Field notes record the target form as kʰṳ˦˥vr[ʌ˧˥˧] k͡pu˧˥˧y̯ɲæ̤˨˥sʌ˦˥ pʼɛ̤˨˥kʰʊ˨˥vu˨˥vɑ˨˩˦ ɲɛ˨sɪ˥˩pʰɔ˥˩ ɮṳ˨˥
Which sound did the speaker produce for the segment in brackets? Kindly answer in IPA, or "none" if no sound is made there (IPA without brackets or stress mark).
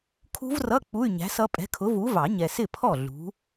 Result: ʌ˧˥˧